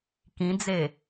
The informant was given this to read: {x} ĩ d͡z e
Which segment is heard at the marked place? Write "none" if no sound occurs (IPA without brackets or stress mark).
k